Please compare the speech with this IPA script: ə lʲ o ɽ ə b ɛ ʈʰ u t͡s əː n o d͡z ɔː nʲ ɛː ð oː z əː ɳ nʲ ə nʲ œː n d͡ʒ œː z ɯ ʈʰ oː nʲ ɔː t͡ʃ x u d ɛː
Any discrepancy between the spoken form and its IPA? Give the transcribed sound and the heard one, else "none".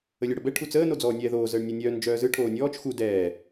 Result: none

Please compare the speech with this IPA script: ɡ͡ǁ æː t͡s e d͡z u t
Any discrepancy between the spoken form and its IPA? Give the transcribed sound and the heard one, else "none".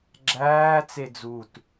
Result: none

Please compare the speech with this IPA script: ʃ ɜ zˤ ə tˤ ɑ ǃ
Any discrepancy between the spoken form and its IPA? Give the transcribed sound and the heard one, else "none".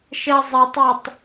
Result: ǃ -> tˤ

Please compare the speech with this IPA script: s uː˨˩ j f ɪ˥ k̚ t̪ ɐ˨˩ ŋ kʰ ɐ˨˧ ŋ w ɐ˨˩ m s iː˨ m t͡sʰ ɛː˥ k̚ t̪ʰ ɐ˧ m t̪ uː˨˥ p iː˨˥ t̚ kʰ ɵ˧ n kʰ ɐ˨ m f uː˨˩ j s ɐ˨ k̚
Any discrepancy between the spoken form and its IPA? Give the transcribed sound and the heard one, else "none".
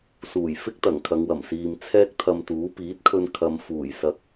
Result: none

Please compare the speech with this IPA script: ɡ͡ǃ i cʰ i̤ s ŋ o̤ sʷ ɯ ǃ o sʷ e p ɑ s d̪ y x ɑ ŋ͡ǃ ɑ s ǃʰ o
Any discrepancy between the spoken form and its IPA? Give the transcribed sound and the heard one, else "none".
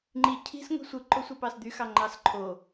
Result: ɡ͡ǃ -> ŋ͡ǃ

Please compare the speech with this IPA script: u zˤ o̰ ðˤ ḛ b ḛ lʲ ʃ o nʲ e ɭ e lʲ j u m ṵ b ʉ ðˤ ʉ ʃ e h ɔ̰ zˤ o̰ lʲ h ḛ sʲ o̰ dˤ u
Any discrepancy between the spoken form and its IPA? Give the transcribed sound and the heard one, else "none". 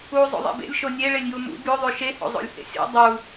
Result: ɔ̰ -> o̰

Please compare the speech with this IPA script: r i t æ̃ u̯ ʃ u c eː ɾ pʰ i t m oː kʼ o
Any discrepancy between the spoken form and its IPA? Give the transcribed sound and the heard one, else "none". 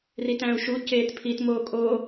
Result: ɾ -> t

